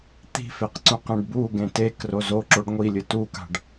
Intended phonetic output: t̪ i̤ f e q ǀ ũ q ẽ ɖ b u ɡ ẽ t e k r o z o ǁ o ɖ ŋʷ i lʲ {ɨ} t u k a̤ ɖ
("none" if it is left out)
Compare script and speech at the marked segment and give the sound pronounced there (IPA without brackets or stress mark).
ɨ